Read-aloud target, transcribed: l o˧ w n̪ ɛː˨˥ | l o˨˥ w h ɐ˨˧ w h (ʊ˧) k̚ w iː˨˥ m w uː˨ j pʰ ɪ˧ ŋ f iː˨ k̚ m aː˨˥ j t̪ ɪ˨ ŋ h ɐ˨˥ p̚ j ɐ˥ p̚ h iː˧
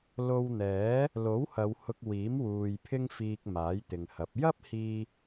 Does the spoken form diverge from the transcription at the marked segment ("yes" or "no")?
no